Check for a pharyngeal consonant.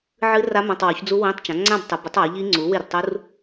present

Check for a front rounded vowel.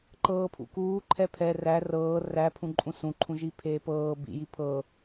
absent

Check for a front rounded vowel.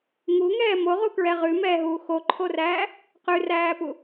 absent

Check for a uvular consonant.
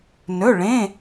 absent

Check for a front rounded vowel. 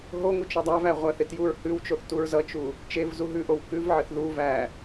absent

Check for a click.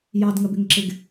present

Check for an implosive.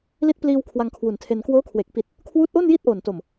absent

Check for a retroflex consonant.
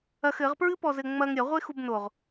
absent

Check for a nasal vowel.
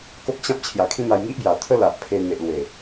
present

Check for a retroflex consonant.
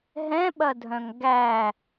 absent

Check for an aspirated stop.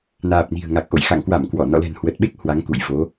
absent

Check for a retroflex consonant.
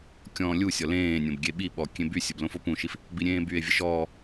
absent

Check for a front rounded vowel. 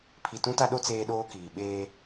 absent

